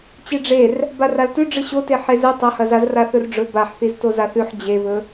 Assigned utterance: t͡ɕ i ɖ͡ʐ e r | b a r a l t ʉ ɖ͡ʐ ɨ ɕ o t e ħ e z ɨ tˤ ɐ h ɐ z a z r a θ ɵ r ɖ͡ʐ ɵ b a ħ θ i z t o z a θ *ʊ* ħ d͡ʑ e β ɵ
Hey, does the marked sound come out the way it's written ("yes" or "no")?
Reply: no